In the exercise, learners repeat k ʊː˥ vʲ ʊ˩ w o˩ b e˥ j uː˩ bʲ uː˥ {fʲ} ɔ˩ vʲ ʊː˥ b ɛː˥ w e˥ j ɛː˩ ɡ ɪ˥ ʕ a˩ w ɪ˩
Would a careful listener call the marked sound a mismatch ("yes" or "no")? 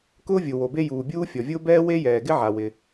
no